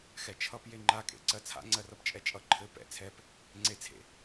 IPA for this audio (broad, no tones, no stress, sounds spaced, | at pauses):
x ɛ t͡ʃʰ ʌ p j e ŋ͡ǃ a kʼ ḛ ǀ ɜ t͡sʰ a̰ ŋ͡ǀ ɜ r ʌ p t͡ʃʼ ɛ t͡ʃʼ ʌ ǃʰ ɘ p ɛ̰ t͡sʰ ɛ p | ŋ͡ǀ e t͡sʰ ḛ